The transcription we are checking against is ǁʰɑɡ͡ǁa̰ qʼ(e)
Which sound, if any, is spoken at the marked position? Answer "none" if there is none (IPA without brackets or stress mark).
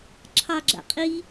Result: i